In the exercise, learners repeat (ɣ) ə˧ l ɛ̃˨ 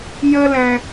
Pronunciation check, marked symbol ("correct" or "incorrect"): incorrect